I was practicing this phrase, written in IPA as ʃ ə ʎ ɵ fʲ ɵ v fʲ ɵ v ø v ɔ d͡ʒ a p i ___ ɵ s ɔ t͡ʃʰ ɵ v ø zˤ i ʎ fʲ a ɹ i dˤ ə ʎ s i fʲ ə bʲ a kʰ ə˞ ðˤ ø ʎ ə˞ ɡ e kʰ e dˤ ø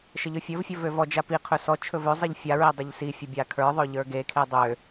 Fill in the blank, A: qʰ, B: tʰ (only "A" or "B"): A